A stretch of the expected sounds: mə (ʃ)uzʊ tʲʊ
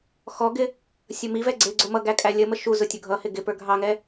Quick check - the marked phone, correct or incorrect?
correct